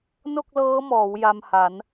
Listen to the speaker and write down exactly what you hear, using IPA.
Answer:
n o˥˩ k̚ l ɤː˦˥ m ɔː˩˦ w j a˧ m h a˩˦ n

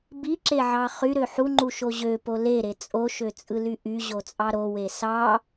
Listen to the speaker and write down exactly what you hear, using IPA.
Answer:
b i ǁ e ʕ ɑ χ y ɾ ø ħ u ŋ͡ǃ u ʃ o ʑ ø p o l e ɾ e t͡sʼ o ʃ ø t͡sʼ ɯ l y ʔ y ʑ o t͡sʼ ɑ ɾ o w e s ɑ

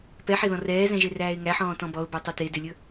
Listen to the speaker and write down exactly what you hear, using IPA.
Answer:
p ɛ ħ e ð ɔ̃ r ɛː z ɛ̃ ʒ e r æː ɪ̯ ŋ æ ħ ɔ̃ː t ɔ̃ b ɔ ʊ̯ b æ tˤ ɵ t e d e lʲ ɵ

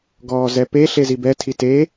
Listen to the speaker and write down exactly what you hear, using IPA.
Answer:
ɡ ɔː z ɛ p e ɬ e z i b ɛ tʰ i t e

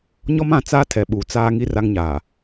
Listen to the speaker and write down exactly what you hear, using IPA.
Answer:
ɲ ɔ˦ m ã˨ t͡s aː˦ tʰ ɛ˨ ɓ uː˨ t͡s aː˦ ŋ i˦ r a˦ ŋ ɲ aː˨

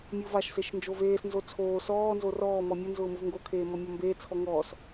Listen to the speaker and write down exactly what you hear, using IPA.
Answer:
mʲ ʊː v a ʃ s e ʃ n d͡ʒ o v eː s n z o t͡sʰ oː s ɔː n z o r ɔː m ɔ mʲ ʊ n z ʊː m ʊ v ŋ ɡ o kʰ eː m ɔ mʲ ɔ m b eː t͡sʰ ɔ ŋ ɔː s

